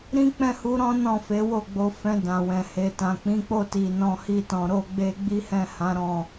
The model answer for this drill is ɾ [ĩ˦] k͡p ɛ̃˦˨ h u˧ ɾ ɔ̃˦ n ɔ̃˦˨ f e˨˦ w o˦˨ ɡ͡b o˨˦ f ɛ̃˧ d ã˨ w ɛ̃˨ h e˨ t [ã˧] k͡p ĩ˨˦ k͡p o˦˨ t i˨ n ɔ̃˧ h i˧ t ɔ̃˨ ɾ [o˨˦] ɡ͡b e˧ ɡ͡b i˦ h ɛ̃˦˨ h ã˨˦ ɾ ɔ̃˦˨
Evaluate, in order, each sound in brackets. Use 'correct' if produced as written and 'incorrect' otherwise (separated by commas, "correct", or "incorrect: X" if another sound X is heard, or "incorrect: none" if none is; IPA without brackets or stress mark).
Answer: correct, incorrect: ã˨, incorrect: o˧